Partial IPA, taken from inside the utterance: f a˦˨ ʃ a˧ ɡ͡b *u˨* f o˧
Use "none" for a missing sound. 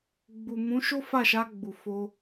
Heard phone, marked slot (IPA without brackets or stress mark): u˨